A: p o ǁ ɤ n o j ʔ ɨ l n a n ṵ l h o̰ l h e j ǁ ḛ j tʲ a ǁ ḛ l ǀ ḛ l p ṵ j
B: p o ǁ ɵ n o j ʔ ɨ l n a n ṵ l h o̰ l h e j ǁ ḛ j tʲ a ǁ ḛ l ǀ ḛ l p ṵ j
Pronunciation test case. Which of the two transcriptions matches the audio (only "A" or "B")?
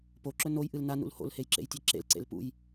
B